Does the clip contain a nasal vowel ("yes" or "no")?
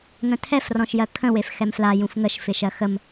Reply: yes